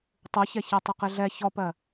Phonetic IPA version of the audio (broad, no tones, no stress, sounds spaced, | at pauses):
tˤ u ç ɛ ç ɛ tˤ ɪ q ɪ ɮ ɛ ç ɔ p ɜ